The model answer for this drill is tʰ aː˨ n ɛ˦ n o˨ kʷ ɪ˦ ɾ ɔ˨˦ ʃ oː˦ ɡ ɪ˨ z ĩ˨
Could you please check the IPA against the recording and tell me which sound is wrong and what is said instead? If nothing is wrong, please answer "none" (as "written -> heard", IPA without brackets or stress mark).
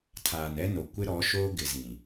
none